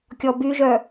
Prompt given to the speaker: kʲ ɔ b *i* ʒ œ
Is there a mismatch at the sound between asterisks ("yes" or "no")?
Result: yes